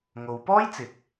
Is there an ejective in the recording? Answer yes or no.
no